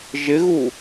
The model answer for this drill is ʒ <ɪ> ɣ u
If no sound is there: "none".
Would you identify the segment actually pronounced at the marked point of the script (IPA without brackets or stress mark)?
ɪ